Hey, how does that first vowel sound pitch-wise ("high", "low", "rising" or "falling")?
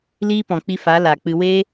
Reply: high